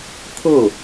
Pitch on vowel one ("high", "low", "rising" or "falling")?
falling